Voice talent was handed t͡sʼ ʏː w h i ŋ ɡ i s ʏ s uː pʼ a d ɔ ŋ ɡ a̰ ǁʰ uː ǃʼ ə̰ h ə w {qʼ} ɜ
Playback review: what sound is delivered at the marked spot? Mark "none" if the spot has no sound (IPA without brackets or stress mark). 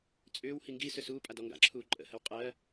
qʼ